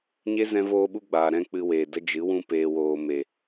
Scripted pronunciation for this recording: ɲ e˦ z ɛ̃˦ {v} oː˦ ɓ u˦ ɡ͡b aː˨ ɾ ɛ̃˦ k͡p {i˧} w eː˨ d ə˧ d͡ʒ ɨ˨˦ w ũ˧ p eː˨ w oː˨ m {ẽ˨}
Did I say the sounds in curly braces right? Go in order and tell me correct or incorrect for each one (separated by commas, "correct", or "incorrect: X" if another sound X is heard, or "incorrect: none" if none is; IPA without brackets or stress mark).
correct, incorrect: ɨ˧, incorrect: e˨